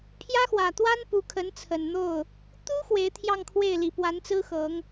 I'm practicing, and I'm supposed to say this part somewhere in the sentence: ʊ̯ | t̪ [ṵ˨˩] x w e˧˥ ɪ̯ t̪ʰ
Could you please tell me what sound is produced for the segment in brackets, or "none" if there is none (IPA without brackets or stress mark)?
u˥